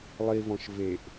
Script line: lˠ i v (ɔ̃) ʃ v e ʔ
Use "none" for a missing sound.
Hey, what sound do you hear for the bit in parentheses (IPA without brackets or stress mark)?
ɔ̃